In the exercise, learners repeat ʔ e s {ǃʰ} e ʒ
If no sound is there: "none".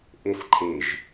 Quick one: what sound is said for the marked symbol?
ǃʰ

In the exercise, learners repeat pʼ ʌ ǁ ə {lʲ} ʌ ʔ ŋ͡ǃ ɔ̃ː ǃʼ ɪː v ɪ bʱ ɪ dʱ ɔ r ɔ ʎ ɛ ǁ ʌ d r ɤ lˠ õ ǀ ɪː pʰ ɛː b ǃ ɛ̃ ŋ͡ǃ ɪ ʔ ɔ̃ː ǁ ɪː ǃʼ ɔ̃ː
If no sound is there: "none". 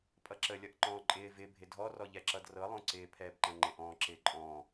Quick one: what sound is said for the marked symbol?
lʲ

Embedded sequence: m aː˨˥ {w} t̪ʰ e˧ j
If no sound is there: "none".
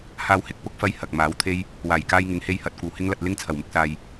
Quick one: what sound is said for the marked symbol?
w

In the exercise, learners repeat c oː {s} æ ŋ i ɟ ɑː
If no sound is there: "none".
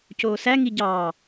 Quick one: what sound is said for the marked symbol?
s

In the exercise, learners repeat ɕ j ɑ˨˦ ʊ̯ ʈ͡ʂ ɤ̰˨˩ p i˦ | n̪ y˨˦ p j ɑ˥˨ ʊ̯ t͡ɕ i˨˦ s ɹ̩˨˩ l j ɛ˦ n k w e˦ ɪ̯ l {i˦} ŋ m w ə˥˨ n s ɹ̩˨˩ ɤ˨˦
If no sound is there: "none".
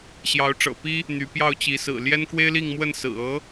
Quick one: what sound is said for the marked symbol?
i˥˨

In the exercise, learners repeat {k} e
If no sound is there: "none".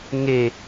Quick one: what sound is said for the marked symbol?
ŋ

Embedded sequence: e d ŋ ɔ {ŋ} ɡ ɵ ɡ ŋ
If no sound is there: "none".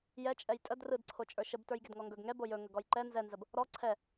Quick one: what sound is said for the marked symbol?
ŋ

